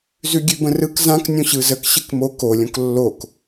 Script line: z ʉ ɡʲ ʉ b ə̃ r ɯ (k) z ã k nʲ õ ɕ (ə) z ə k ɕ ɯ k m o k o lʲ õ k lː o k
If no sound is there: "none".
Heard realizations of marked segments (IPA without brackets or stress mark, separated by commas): k, ɯ